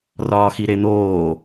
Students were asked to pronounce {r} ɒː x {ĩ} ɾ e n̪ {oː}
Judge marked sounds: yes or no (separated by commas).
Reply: yes, no, yes